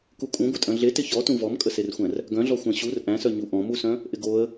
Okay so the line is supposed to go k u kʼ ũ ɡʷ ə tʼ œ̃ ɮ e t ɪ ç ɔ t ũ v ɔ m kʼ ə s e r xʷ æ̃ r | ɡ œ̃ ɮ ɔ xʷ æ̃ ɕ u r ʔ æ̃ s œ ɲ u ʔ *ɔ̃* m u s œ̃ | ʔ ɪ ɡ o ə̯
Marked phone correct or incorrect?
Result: correct